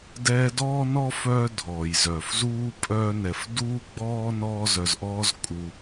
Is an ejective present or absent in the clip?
present